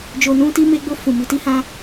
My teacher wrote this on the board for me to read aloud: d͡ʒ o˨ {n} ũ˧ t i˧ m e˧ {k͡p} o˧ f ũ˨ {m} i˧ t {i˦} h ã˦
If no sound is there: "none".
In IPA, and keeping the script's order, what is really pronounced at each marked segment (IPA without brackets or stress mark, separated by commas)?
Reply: n, ɡ͡b, m, i˦